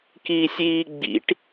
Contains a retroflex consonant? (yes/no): yes